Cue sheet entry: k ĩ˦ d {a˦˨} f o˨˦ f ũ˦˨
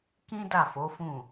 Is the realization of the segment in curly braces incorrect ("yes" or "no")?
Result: no